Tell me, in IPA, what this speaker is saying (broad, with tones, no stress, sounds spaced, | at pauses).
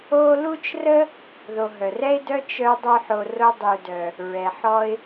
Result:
o˦ l u˥ t͡ʃ r ə˥ | ð o˨ ɦ œ˩ r ɛ˥ ɪ̯ d œ˥ t͡ʃ œ˥ dˤ œ˦ ħ o˨ r o˦ dˤ u˨ d œ˩ | ɹ ɛ˩ ħ ɔ˦ ɪ̯